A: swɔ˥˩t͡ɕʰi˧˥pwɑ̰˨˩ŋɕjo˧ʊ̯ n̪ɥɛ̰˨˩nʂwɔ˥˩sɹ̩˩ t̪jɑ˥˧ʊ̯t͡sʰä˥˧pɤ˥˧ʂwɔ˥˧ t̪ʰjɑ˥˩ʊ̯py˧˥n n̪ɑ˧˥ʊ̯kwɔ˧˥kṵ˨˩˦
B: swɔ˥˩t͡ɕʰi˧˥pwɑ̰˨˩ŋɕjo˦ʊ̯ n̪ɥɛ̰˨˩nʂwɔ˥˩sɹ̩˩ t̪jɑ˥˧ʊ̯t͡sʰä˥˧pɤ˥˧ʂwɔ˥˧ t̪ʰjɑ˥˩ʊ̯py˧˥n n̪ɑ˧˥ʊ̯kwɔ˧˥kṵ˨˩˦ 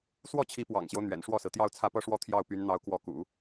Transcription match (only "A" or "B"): B